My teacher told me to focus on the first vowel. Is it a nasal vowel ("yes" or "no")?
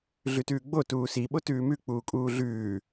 no